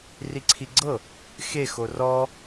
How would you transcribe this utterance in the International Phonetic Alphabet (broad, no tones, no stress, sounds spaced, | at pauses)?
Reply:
r i ǀʰ i ɡ͡ǀ ɤ | x e x o r ɔ